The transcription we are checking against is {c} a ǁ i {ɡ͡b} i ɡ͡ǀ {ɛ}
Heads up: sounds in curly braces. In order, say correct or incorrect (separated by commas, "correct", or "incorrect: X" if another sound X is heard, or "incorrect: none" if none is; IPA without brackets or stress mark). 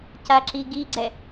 correct, incorrect: ɡ, correct